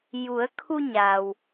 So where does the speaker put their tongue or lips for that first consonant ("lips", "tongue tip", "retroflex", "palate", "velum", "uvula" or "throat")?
palate